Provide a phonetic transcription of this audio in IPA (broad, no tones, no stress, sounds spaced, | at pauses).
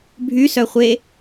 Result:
bʱ y s œ χʷ e